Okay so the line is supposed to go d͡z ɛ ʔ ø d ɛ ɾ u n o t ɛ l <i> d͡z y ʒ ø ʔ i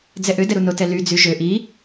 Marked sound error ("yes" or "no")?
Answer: yes